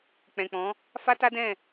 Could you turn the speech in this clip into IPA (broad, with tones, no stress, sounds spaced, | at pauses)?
k͡p ɛ̃˨ k͡p ɔ̃˨˦ | f a˦ t a˦ d ɛ̃˦˨